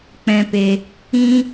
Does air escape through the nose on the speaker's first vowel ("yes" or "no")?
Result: yes